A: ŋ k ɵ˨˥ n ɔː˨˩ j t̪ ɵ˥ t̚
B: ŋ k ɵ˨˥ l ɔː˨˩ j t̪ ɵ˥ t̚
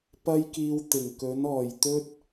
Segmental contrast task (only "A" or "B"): A